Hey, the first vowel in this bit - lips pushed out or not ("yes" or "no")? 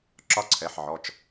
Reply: yes